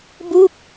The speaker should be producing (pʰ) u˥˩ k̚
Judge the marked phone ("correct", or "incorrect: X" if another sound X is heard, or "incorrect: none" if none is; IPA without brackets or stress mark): incorrect: b